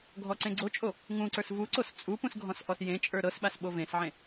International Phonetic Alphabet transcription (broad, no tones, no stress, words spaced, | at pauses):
ɡʱɔǀẽɡ͡ǀot͡ʃʼo | ŋũǀə˞s vuǀos t͡sʼupũs ɡʱɔ̃sʔɔsjẽt͡ʃʼə˞ ɾɤsɓas ɓovẽsʕẽ